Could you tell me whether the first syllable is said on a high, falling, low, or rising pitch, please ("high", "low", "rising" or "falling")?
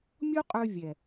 high